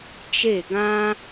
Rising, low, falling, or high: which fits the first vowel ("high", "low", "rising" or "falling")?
falling